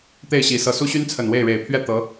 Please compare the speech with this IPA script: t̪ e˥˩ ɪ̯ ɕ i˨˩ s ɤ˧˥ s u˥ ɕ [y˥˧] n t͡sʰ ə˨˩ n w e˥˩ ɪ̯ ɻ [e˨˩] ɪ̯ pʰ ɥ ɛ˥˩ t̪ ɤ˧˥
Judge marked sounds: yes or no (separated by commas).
no, yes